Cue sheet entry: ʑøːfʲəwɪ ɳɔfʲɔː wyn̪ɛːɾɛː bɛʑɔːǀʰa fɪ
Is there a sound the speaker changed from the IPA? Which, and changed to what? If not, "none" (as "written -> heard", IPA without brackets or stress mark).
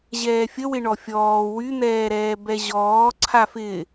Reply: øː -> ɛː